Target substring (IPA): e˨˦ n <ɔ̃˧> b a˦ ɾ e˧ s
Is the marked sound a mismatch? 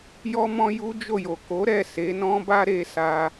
yes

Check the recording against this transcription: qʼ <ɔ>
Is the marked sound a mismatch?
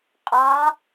yes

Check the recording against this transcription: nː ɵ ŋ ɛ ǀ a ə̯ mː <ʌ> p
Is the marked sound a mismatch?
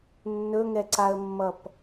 no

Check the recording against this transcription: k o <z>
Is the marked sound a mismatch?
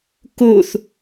yes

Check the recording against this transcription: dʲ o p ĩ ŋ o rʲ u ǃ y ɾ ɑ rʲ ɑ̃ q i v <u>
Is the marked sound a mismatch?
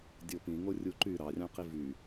yes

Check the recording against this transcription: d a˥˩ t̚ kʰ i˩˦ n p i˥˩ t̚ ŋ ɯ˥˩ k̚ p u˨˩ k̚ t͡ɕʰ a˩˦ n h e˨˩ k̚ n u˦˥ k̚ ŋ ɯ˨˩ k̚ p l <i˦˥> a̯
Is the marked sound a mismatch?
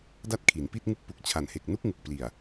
yes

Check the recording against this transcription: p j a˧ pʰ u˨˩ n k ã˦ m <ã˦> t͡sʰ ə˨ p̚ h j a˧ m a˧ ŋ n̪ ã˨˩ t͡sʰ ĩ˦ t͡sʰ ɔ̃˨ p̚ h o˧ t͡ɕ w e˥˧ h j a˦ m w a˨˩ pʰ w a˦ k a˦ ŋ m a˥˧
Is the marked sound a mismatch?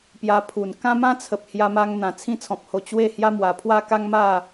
no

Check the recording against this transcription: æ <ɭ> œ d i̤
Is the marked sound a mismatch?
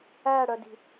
yes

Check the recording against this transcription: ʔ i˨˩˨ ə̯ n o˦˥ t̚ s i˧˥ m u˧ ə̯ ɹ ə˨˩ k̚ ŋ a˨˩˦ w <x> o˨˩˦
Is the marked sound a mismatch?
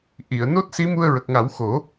no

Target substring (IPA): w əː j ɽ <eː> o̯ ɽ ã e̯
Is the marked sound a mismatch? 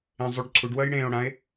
yes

